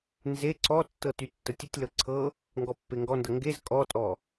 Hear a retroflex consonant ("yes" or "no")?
no